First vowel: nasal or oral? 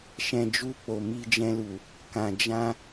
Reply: nasal